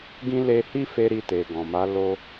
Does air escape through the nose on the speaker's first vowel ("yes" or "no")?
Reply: yes